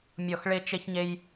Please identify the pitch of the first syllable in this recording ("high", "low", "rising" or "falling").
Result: falling